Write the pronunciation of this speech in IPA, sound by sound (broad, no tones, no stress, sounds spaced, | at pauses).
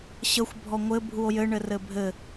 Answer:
ɕ ə xʷ bʱ ɔ ŋʷ ɘ bʱ u o̯ j ɘ ɳ ɘ r ɘ bʱ ɘ